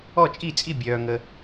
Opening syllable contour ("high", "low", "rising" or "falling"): falling